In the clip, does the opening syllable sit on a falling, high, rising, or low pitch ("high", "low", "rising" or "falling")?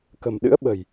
low